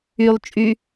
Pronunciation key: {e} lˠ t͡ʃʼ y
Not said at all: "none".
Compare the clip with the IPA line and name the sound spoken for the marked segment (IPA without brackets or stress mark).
y